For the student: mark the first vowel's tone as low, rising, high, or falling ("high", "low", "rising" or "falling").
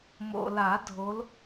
low